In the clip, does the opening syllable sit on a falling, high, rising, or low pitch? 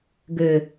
low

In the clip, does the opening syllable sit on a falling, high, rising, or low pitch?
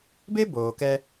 high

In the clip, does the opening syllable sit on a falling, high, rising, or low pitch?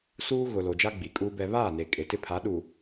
high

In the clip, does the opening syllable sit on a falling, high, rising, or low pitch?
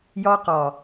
high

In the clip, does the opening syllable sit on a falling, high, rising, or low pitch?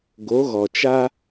rising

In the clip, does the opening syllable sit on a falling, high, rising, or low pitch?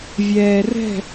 low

